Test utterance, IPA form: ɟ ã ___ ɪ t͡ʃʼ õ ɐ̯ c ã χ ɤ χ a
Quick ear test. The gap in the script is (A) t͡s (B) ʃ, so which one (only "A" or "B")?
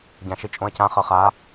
B